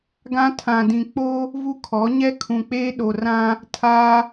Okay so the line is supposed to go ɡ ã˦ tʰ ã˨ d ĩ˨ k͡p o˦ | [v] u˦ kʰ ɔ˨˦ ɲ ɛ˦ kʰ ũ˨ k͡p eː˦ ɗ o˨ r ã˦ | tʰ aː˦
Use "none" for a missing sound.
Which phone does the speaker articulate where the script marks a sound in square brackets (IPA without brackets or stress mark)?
v